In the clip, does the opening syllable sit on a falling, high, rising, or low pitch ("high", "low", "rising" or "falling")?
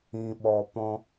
low